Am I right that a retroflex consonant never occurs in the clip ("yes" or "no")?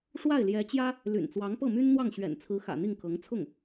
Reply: no